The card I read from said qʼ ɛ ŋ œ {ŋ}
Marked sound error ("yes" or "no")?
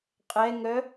yes